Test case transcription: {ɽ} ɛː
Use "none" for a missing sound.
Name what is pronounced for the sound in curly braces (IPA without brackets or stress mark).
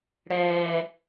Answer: ɽ